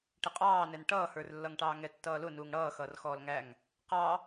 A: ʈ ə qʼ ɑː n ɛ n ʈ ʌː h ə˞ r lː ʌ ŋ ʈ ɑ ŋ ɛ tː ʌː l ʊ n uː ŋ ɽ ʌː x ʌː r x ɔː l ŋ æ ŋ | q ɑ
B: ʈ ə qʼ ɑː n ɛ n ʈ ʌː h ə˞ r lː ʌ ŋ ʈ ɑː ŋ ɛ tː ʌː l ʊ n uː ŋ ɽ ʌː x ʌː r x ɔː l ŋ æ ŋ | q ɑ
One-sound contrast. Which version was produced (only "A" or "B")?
B